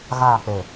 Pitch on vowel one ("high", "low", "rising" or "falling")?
falling